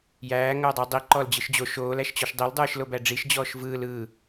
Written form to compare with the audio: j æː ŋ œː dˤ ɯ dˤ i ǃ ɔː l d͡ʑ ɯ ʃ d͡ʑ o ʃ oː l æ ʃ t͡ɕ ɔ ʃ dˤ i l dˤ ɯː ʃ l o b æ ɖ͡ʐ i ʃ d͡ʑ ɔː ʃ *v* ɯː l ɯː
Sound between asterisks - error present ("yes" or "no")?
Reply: no